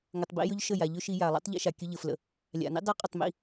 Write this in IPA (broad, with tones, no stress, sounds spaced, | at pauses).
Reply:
ŋ ə˨ tˤ b ḭ˧ j ɵ˦ ʎ ʃ ə˦˨ j a˨ ʎ ɵ˦ ʃ i˧ j a˨ lˠ ḭ˦ tˤ ʎ ḭ˧ ʃ a˨ kʲ ɵ˧ ʎ ə˨ f l ə̰˨ | lʲ a̰˨ n ḭ˦ dˤ i˧ qʼ ɵ˦˨ tˤ m ḭ˧